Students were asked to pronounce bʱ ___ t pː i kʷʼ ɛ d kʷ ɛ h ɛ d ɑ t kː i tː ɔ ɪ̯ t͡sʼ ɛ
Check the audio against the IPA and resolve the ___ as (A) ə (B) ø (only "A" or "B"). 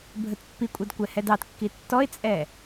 A